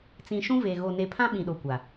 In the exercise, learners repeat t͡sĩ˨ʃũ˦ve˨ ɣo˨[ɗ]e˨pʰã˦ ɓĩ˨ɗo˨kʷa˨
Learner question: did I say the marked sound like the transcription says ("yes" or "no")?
no